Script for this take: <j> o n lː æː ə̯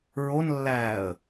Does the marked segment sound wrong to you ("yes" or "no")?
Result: yes